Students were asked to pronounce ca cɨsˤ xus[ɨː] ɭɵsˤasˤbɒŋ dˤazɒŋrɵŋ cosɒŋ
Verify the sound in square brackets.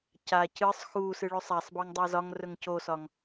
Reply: incorrect: ɨ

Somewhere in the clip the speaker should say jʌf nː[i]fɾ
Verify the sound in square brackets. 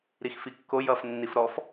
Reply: correct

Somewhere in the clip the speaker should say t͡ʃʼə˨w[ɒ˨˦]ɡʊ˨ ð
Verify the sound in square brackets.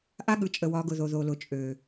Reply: correct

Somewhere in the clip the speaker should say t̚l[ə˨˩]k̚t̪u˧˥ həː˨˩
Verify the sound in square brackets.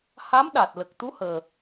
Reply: correct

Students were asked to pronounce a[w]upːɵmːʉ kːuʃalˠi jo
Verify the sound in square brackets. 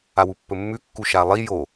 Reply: correct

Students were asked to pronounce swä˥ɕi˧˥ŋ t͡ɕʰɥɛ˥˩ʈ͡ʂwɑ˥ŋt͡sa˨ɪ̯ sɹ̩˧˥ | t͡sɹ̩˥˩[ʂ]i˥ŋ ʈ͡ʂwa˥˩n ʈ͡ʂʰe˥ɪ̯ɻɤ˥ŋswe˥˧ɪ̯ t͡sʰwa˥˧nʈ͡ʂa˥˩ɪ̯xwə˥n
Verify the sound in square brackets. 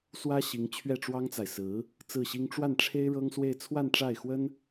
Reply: incorrect: ɕ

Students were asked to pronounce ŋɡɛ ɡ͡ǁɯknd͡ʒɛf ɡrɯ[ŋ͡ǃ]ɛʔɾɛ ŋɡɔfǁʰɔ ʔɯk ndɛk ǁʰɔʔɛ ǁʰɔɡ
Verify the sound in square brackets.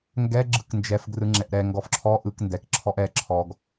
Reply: incorrect: ŋ͡ǁ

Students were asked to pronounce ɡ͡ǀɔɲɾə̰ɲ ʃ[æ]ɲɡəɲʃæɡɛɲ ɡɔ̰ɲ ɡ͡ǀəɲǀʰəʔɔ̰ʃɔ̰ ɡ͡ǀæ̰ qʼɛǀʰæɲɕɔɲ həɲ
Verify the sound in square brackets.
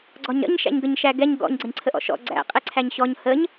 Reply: incorrect: æ̰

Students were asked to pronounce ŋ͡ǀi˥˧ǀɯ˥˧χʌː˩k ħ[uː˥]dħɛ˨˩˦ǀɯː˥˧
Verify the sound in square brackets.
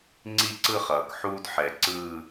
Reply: correct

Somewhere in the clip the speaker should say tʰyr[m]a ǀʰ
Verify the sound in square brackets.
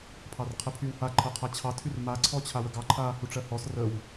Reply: correct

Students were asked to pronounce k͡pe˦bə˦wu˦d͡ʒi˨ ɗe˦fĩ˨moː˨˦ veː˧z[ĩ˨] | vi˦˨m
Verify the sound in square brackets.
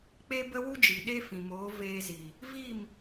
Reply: incorrect: i˨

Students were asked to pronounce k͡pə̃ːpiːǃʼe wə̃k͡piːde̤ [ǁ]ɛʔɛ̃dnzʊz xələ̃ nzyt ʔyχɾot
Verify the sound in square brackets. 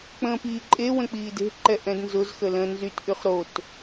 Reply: incorrect: ǃ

